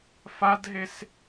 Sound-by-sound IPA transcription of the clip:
f a d ɦ e s

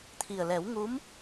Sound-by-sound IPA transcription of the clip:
t̪ʰ i˨˩ ə̯ l ɛ˨˩˦ w ŋ u˧˥ m

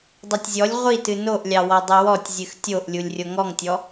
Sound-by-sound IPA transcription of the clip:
dˤ o tʲ zʲ ɔ lʲ ʁʷ i t ɨ n o ʔ lʲ ɑ w ɔ dˤ ɨ w ɔ tʲ zʲ ɨ x tʲ o ʔ lʲ u lʲ rʲ o ŋ ɔ ŋ tʲ ɔ

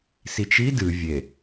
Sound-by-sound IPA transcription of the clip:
s i t͡ʃ i d ɨ vʲ e

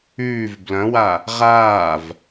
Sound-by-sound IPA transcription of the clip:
ʉː v b l ɐ̃ w a | ʁ aː v

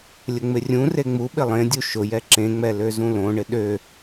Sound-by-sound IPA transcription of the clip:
lʲ ə ŋ͡m ɪ rʲ ũ r e ŋ͡m u ɓ ɪ lˠ ẽ dʲ u ʃ ʊ j ɛ ǁ ẽ ŋ͡m ɛ l ø z ũ l õ ɳ ɪ ɗ ø

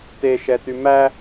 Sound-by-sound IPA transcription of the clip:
t e ʃ ɛ t y m æ

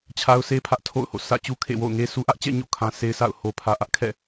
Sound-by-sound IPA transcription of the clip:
t͡ɕʰ a˦ ʊ̯ s e˦ pʰ ä˦ ʔ tʰ o̰˦˨ ʊ̯ h o̰˦˨ s ä̰˦˨ t͡ɕ u˦ kʰ ḛ˦˨ w o̰˦˨ ʊ̯ ŋ e˦ sʰ u˦ ʔ ä˦ ʔ t͡ɕ ɛ̰˦˨ ɲ o̰˦˨ kʰ ã˦ s e˦ ɪ̯ sʰ a̰˦˨ ʊ̯ h o˨ pʰ ä˨ ʔ ä˦ ʔ kʰ ɛ̰˦˨

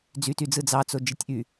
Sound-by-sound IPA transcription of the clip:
d͡z y t y d͡z ɯ d͡z ɑ t͡s o d͡ʒ i tʲ ʔ y

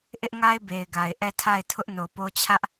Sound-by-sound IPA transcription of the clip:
ʔ ɪ˦ ʔ ŋ a˦ ɪ̯ b e˨ ɪ̯ ɡ a˨ ɪ̯ ʔ ɛ˦˨ tʰ a˦˨ ɪ̯ tʰ ʊ˦ ʔ n o˨ p o˦ t͡ɕʰ ä˦ ʔ

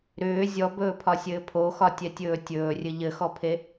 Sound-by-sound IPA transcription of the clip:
ɾ ʏː zʲ ɔ b ɵː pʰ ɒ sʲ ɘː pʰ o x ɒ tʲ ɛ tʲ ɵː tʲ ɵː rʲ ɘ ʎ ɘ x ɔ pʰ e

